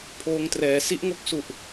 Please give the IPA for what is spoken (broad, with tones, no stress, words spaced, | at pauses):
pʰoː˧ŋ trɛː˩˦ si˦˥ʔŋo˦˥k̚su˨˩ʔ